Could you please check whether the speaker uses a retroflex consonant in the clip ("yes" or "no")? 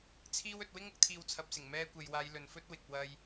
no